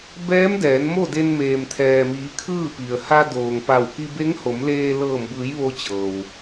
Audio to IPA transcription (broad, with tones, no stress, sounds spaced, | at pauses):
b ɛː˧˥ m d ɛː˩˧ n m o˥˨ d e˧ n m eː˩ m t̪ʰ ɛː˩ m iː˩˧ kʰ ɯː˥˨ p i˩ ə̯ h a˧ d oː˩ ŋ p a˧˩ w k i˧ b e˧˥ ŋ h o˩˧ m l eː˧ l ɤː˧˩ m b ɯː˩˧ j ʋ o˧ t͡ɕ ɤː˩ w